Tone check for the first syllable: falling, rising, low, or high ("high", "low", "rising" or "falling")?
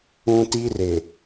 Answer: high